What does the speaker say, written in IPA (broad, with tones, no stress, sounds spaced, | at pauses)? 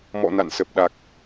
m ɔ̰˧˨ n a̰˧˨ n s ə˨˩ p̚ ɗ a˨˩ k̚